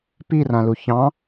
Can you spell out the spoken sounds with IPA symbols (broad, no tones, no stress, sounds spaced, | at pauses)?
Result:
p i r ã l u ç ɑ̃